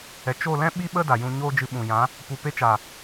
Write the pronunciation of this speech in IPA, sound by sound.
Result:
ɛ˨t͡ʃo˦˨lɛ̃˦ ɓi˦ɓə˦ da˨jũ˧ɲoː˦d͡ʒɨ˧ ɓũ˨jã˨˦ | pu˨pe˧t͡ʃa˨

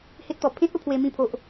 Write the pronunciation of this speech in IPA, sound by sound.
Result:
he˦t̚t̪ɔ˨˩ pʰẽ˦t̚ o˦pʰwe˦mĩ˥˧ pʰo˦ʔ

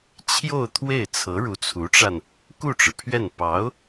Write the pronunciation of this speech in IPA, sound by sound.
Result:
t͡ɕʰjo˥˧ʊ̯t̪ʰwe˥˩ɪ̯ t͡sʰɤ˧˥ɻu˧˥t͡sʰu˧˥ʈ͡ʂa˧n | ku˥˩ʈ͡ʂɻ̩˩pʰɥɛ˥˩n pɑ˧˥ʊ̯

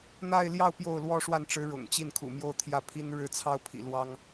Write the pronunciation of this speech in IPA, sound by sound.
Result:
n̪a˥˧ɪ̯ljɑ˥˧ʊ̯ pjo˥˩ʊ̯lwɔ˥ʂwa˥˩nʈ͡ʂɻ̩˧˥ ɻʊ̰˨˩ŋ t͡ɕi˥˩nkʰṵ˨˩mjo˥˧ʊ̯ t̪ʰjä˥˩pʰi˥n ɻɻ̩˥˩t͡sʰɑ˥ʊ̯pʰḭ˨˩ lwɑ˥ŋ

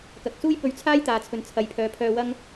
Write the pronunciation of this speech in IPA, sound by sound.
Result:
kɐ˨k̚suː˥jpɵ˧ɥ t͡sʰaː˥jt̪aː˨ t͡sʰɵ˨nt͡sʰɐ˨jpʰœː˨˧pʰœː˧ wɐ˥ŋ

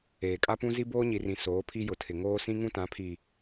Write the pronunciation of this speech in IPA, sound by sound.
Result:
eː˨kʼa˦pũ˦ zi˦boː˦ɲi˨rĩ˨ soː˨˦pʰi˦jʊ˨tʰɪ˨ ŋoː˦ sĩ˦ŋũ˦tã˨˦pʰi˨

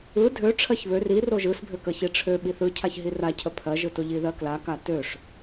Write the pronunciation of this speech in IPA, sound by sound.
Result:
ɯ dʱø ʈ͡ʂʰɜçβør ir oʒɯsbʱø kəçiʈ͡ʂʰø ɓiθɯcʰaç ɦira cʰəpʰɜʒɯto ʎiðɜkla katøʂ

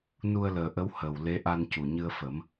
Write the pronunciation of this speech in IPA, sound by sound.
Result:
nu˧ə̯ləː˨˩ʔə˧˥w hə˨˩w le˧˥ʔa˧ncu˨˩ ɲɨ˧ə̯fə˨˩˦m

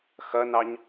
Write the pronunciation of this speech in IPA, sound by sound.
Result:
xɐnɑɲ

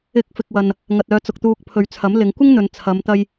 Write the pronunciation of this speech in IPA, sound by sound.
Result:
ɪ˨˥k̚ fɪ˨k̚wɐ˨n | ŋɐ˨t̚œː˨˧t͡sʊ˨k̚t̪uː˧k̚ pʰɵ˨ɥt͡sʰɐ˨˥mlɪ˨˧ŋ kʷɪ˥ŋn̪ɵ˨n t͡sʰɐ˨˧mt̪ɐ˧j

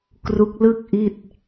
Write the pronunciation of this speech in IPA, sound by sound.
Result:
kru˦˥k̚lɯ˥˩k̚ʔi˥˩t̚

